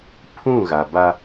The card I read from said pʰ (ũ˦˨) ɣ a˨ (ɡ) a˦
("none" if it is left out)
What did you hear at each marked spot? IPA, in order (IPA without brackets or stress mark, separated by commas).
ũ˦˨, b